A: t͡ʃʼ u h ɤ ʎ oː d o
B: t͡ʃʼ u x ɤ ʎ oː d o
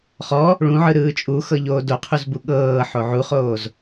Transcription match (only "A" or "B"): B